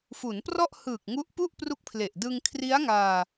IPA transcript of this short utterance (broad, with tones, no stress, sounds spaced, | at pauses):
f u˩˦ n p r ɔ˥˩ ʔ h ɯː˨˩ k̚ ŋ u˦˥ ʔ p u˥˩ ʔ p r u˦˥ k̚ pʰ l e˨˩ ʔ d ɯ˧ ŋ kʰ r i˦˥ a̯ ŋ aː˧